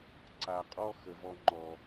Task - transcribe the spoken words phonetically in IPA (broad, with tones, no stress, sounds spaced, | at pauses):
ǀ a˨ qʼ ɔ˦ x ə˨ v ɔ˧ ŋ͡ǃ ɔ˨